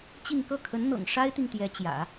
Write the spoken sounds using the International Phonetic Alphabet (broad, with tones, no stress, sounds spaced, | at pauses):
t͡ɕ i˥˧ ŋ k ɤ˥˩ kʰ ə˧˥ n n̪ ɤ̰˨˩ ŋ ʂ a˥ ɪ̯ t̪ i˨ ŋ t̪ j ɛ˧˥ t͡ɕ j ä̰˨˩˦